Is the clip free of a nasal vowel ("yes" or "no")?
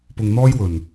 yes